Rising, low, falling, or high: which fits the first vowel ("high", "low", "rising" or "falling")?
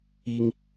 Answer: high